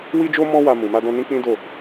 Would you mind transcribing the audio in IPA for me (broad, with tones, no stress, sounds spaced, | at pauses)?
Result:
w i˦ d͡ʒ o˦ m ɔ̃˦ w a˧ m ũ˨ m a˧ d ɔ̃˧ n ĩ˦ k͡p ĩ˦ d o˦˨